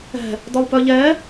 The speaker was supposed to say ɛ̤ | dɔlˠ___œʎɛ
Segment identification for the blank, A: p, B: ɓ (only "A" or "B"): A